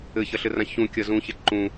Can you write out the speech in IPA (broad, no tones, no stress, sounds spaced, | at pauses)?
ɘ ç ɐ ɬ ɘ r ã ç ũ kʲ ɐ z ũ ç e ǃ ũ